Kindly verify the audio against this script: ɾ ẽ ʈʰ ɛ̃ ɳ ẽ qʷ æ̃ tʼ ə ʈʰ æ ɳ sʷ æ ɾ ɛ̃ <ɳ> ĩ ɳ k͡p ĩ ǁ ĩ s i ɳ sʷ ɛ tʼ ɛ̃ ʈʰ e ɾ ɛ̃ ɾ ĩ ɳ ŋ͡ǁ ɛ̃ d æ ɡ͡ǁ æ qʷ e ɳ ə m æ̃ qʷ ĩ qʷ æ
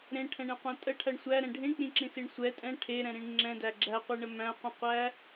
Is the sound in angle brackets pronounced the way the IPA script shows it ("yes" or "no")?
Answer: no